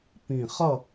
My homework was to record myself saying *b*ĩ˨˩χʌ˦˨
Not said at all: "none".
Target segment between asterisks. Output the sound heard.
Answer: p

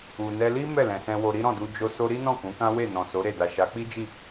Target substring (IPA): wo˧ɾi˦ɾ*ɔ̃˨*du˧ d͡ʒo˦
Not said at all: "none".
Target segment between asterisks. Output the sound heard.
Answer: ɔ̃˦˨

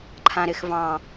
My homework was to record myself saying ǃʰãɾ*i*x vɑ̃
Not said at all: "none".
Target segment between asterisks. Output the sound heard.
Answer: ɪ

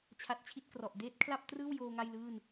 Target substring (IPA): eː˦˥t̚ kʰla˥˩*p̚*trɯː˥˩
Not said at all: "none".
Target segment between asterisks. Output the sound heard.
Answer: p̚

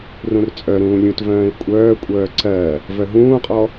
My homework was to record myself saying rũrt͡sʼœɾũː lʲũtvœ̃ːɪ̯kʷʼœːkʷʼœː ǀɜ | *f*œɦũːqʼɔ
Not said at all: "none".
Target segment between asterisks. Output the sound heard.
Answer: v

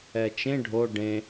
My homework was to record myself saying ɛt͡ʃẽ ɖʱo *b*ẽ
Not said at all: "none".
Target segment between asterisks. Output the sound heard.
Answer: ɖ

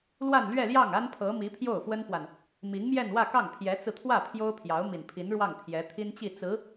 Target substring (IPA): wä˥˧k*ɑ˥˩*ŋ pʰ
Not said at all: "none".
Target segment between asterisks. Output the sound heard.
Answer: ɑ˥˩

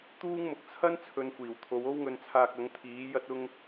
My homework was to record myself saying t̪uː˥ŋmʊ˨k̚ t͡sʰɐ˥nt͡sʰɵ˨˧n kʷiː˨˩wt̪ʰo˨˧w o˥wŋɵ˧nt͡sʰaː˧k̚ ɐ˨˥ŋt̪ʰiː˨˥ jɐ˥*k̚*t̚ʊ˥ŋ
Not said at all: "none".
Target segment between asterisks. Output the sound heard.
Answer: none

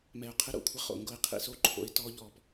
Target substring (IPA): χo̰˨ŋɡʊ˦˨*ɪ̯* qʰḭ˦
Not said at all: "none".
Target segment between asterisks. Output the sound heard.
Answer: ɪ̯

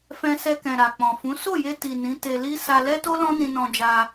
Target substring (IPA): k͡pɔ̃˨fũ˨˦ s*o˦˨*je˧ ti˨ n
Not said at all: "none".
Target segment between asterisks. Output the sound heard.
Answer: o˦˨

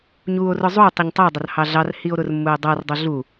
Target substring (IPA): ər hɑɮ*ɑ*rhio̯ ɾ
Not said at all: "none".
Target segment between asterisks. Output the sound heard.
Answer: ɑ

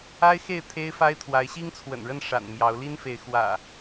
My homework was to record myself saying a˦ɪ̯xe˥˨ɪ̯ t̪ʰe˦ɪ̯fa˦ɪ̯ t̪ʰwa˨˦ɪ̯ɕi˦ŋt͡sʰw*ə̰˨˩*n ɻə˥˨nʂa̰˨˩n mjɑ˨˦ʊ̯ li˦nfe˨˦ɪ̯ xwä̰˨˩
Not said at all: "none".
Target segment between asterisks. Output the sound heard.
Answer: ə̰˨˩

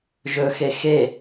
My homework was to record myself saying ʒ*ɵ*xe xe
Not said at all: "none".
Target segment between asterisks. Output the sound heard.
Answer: ɵ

